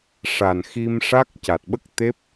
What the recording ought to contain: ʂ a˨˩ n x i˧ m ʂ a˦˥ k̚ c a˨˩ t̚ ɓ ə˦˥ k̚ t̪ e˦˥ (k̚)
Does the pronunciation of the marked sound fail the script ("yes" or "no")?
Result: yes